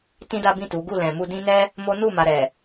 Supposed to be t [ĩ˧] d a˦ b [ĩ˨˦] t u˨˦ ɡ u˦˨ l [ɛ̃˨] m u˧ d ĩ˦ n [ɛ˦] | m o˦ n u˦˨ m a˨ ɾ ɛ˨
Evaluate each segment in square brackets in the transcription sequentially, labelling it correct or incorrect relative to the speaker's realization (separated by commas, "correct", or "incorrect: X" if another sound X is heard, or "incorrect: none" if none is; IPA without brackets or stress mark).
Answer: incorrect: ĩ˦, incorrect: ĩ˦˨, correct, correct